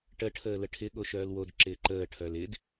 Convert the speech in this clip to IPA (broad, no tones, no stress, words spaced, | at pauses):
ʈə ʈʰəːləʈʰɪ ɠoʃœːlwod ǁɪːǃəː ʈʰœlɪd